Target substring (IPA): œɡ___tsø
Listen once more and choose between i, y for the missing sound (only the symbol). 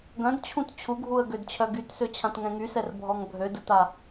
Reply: y